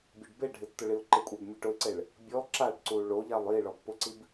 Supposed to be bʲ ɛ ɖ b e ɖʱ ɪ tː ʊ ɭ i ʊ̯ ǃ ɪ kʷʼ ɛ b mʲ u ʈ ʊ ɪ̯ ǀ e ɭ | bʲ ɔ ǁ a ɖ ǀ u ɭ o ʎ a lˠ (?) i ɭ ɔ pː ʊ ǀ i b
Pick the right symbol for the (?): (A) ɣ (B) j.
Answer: B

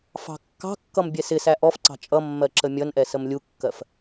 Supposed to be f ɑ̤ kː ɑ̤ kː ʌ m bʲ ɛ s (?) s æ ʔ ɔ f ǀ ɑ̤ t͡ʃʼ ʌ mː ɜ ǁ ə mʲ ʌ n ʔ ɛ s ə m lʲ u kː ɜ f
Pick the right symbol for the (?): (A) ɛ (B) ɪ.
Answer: B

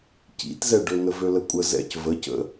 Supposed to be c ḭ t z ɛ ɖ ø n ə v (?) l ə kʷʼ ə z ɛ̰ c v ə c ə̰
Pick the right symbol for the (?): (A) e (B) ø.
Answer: B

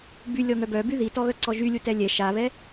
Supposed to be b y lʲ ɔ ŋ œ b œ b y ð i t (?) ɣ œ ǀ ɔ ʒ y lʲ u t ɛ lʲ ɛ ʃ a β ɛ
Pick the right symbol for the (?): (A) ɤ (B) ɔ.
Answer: B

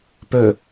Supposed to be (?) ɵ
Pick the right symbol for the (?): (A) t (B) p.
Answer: B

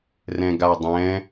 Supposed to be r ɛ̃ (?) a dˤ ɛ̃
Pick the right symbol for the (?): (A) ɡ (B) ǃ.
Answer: A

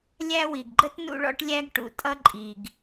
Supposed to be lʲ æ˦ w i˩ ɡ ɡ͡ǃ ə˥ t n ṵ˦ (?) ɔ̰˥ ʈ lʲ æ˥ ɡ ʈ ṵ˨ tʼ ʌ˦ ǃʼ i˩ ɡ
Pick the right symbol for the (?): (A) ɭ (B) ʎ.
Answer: A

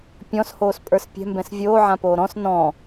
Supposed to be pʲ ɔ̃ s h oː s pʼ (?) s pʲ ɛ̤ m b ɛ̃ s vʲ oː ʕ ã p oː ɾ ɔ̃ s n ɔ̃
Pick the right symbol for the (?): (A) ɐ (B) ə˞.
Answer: B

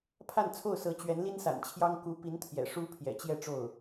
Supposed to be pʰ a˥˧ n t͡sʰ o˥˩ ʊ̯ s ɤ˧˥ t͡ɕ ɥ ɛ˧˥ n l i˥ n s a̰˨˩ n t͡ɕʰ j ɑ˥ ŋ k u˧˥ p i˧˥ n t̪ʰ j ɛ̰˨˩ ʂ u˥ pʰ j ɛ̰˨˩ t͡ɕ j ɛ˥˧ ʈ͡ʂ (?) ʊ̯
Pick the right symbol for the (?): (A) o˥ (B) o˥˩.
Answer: B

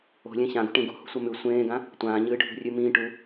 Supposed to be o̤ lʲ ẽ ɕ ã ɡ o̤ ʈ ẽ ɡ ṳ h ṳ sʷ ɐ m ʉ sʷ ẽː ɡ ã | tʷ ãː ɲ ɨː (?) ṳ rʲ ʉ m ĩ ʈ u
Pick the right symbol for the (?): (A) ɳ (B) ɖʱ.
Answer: B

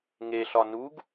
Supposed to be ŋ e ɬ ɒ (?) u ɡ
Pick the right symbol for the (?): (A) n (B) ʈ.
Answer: A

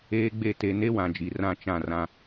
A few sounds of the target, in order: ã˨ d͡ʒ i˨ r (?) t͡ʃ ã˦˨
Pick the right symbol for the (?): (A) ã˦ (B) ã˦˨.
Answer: B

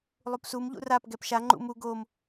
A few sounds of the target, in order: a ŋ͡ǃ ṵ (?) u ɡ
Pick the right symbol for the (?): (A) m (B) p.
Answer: A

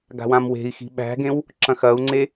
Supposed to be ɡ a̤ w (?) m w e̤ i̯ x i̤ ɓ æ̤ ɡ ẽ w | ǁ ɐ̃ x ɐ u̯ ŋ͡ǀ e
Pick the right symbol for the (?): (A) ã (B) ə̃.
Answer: A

